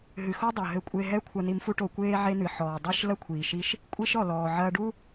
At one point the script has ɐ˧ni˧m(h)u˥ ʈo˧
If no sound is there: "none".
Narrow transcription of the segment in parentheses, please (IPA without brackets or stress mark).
f